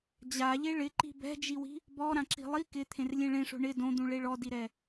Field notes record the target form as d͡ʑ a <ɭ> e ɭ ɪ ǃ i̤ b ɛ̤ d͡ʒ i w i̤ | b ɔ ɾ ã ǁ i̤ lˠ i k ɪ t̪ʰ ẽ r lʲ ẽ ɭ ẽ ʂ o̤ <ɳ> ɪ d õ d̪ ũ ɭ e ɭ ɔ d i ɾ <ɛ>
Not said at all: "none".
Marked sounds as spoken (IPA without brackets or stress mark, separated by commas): ʎ, ɳ, ɛ